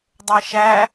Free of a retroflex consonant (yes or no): yes